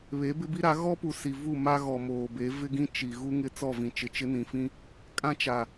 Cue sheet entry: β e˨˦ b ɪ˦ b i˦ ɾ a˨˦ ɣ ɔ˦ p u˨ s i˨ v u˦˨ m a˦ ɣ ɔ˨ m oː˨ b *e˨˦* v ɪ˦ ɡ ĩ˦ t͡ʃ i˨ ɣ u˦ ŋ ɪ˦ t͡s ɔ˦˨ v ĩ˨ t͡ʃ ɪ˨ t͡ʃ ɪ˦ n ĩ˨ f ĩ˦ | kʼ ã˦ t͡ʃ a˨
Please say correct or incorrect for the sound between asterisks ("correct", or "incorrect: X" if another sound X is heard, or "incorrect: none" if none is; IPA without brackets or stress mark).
correct